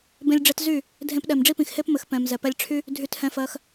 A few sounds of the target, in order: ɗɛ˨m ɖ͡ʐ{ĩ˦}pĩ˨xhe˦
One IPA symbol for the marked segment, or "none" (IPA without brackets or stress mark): i˦